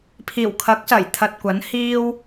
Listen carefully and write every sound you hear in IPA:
pʰiː˨˩wkʰɐ˨˥k̚sɐ˨˩jt̪ʰɐ˨t̚ kʷɐ˨˥nhiː˥w

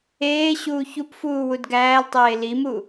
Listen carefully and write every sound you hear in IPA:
eː ɕuːçupfuː wudɡæːltˤeː limu

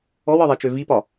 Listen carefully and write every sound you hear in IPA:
ɔwɒðˤɛt͡ʃø vipɒ

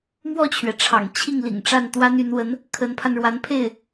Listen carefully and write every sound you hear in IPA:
mwɔ˥˩t͡ɕʰɥɛ˩ʈ͡ʂʰɑ̰˨˩ŋ t͡ɕʰi˥˩ŋlḭ˨˩ŋʈ͡ʂa˥˩n t̪wa˥ny˧˥nwə˧˥n | kʰə˧˥npʰa˧nɻwa˧˥npʰe˥˩ɪ̯

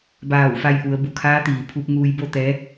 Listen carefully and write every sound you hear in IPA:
baː˧˩wfa˧jʔu˩˧ə̯ bu˩kʰaː˧˥t̪iː˩ pʰu˧p̚ŋuː˧jbo˥˨t̪ɛː˧˥

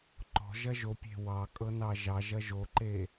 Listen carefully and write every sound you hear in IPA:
ǃɔ̤ʒɐ ʒopʲe̤ wɑkʼɤ nɑʒɑʒɐ ʒoǃe

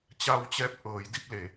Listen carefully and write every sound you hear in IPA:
t͡ɕa˧wt͡ɕɛː˧p̚ ʔɤː˩˧jdi˧p̚le˩˧

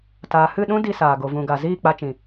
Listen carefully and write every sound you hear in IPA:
taː˨hɨ˦˨ ɗũ˦ di˧saː˨ɡo˨ vũ˨ɡa˨ ziː˦˨k͡pa˧t͡ʃĩ˨

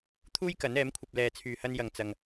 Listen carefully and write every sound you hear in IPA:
t̪ʰuː˥jkɐ˨˥nɛː˨˥mkʷʰɐ˧p̚ lɛː˨t͡sʰyː˨hɐ˧n jɐ˨ŋ t͡sɐ˧ŋ

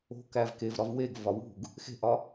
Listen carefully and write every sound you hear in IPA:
o̤kæv kevɾɒv weɡvɒ wṳɡ | xe̤ʔɒ

